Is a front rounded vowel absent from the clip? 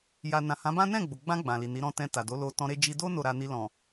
yes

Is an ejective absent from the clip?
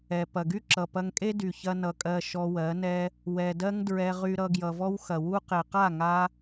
no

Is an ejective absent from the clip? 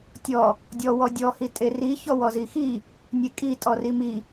no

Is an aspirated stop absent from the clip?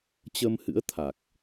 no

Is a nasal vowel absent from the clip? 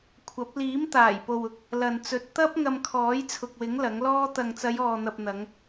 yes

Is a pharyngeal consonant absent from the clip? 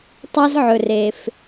no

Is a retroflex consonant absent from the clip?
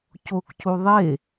yes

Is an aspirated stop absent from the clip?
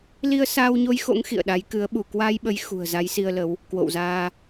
yes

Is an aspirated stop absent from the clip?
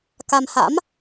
yes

